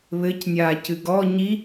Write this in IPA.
β ɘ c nʲ aː c ɨ ɡ ɔ ɲ i

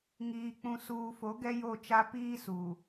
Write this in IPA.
ŋ iː˨ k͡p ũ˨ s uː˨ f o˨˦ ɡ ɛ˦ j o˦˨ t͡ʃ a˦ p iː˦ s u˨

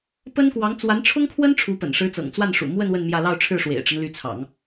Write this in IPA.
p ə˥ n k w ɑ˧˥ ŋ t͡s w a˧˥ n ʈ͡ʂʰ ʊ˥ ŋ kʰ w ə˥ n ʈ͡ʂʰ u˧˥ p ə̰˨˩ n ʂ ɻ̩˧˥ t͡s ɤ̰˨˩ ŋ t͡s w a˥˩ n ʂ ṵ˨˩ m w ə˥˧ n w ə˥˧ n m j ä˥˧ l ɑ˥˧ ʊ̯ ʈ͡ʂʰ ɻ̩˥˩ ʂ w ḛ˨˩ ɪ̯ ʈ͡ʂ ə˦ n l y˧˥ t͡sʰ ɑ̰˨˩˦ ŋ

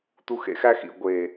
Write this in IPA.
t̪ u˧ x ḛ˨ x æ˦ x ḭ˨ ɡʷ eː˨

